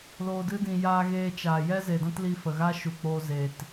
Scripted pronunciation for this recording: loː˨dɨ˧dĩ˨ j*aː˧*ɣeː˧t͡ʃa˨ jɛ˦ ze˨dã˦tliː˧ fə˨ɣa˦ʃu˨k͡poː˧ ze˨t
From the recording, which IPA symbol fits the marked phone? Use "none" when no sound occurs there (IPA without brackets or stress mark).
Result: aː˧